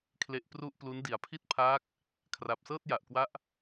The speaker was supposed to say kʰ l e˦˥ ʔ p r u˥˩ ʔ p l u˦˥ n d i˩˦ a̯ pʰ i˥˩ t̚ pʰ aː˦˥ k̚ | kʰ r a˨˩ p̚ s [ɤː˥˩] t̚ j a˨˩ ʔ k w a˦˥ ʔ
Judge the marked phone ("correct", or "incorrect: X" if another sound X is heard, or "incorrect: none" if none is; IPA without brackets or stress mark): correct